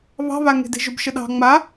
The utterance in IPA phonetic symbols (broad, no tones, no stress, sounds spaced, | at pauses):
β ɑ̤ β a ŋ e̤ d e̤ ʒ ʊ b ʃ ə ɗ ɑ̤ ŋ͡m a